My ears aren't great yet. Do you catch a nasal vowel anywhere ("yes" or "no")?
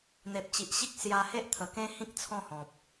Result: yes